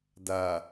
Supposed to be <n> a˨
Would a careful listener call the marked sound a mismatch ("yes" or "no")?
yes